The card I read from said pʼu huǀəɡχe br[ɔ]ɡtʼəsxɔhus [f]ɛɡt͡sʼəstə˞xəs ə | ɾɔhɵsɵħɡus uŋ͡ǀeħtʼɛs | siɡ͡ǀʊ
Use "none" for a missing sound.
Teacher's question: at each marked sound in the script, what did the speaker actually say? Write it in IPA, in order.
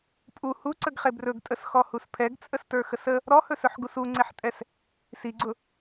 ɵ, pʰ

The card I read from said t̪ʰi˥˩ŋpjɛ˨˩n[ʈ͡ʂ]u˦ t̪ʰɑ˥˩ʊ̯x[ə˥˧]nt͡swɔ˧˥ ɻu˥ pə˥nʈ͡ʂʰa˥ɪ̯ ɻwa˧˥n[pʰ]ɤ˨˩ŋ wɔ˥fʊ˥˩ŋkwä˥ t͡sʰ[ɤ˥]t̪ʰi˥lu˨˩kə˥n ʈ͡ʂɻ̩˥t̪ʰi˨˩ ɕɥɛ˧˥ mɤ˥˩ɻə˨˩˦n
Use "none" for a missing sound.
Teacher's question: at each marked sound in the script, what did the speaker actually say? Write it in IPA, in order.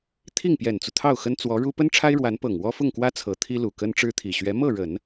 t͡s, ə˥, p, ɤ˧˥

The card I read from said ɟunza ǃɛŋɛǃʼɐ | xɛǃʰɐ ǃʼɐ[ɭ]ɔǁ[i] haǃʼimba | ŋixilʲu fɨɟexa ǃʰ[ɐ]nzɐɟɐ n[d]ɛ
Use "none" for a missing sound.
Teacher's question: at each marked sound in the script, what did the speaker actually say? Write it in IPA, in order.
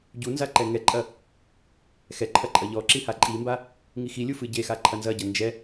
ʎ, i, ɐ, d͡ʒ

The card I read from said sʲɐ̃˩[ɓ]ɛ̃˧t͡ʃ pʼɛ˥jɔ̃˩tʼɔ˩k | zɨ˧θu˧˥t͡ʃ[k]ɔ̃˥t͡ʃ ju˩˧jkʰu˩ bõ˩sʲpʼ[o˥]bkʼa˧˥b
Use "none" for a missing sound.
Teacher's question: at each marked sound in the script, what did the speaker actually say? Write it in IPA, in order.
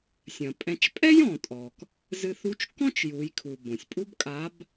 pʼ, k, u˥

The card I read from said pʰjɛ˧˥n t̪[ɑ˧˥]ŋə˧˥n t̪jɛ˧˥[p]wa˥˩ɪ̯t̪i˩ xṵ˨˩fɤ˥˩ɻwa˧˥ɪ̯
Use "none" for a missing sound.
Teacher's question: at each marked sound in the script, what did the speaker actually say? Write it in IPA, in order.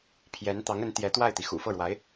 ɑ˧˥, t̪

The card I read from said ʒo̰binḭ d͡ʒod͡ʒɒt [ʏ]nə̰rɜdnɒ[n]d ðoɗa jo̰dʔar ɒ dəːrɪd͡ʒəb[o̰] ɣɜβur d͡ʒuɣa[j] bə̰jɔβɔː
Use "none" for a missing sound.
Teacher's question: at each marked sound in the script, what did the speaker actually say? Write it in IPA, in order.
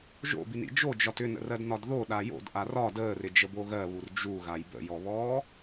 ʏ, none, o, j

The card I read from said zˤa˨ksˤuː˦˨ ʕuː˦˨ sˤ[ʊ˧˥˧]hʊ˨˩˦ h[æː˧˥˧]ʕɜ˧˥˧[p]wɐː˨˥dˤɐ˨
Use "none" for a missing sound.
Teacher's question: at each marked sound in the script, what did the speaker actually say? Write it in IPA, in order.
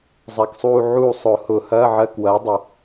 ʊ˨˩˦, ɐː˧˥˧, k

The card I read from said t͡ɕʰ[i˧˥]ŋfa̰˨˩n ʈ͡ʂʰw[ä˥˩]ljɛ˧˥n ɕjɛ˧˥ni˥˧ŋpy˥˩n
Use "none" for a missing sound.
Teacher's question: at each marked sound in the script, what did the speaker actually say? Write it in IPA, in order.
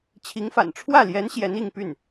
i˧˥, ä˥˩

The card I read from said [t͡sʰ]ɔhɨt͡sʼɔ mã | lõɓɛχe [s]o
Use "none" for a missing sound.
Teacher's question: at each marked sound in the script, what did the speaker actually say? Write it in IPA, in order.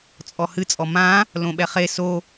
t͡sʼ, s

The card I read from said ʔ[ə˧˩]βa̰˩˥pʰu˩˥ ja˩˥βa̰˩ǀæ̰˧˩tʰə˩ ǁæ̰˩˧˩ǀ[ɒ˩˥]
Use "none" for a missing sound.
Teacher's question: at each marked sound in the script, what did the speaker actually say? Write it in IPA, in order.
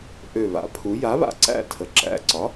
ø˧˩, ɒ˩˥

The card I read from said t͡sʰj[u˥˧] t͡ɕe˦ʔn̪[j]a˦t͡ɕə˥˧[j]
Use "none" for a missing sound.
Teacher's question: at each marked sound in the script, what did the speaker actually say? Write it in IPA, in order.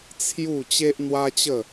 u˥˧, w, none

